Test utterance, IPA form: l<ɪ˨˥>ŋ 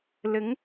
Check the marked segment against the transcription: correct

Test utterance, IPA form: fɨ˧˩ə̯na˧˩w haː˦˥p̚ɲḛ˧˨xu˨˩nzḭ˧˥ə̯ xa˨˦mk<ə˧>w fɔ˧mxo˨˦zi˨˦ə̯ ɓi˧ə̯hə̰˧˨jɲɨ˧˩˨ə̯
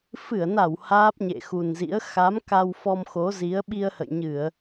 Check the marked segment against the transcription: incorrect: a˧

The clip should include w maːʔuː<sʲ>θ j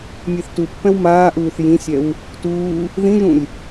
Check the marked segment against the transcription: incorrect: none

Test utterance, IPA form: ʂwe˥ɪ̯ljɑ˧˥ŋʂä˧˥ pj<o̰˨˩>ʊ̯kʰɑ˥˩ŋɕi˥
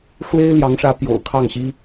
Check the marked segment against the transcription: correct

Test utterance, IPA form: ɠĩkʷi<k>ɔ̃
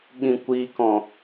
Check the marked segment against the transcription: correct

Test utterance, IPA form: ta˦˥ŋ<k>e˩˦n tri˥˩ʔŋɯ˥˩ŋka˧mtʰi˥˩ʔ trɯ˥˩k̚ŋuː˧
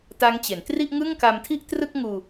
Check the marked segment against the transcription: incorrect: t͡ɕ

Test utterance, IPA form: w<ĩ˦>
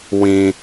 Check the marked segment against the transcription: correct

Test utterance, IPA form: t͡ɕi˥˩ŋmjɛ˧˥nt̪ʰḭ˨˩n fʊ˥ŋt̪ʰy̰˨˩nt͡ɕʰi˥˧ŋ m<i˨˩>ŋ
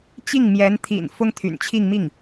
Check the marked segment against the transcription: incorrect: i˥˩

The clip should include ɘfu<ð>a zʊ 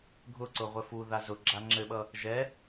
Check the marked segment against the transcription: correct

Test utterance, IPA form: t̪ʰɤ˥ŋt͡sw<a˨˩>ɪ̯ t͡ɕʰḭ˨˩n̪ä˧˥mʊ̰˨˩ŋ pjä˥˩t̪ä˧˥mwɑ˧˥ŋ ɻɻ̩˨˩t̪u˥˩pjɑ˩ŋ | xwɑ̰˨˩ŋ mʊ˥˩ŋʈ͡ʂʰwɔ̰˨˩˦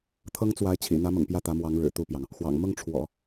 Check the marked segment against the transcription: incorrect: a˧˥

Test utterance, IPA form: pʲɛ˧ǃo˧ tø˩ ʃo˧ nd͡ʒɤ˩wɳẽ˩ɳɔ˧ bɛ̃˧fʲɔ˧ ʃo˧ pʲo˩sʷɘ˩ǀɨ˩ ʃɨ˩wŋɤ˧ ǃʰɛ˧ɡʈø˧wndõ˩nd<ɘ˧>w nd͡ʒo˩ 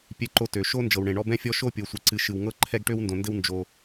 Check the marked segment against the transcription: correct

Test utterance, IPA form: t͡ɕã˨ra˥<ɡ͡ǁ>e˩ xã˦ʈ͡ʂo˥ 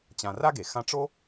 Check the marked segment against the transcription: incorrect: ɡ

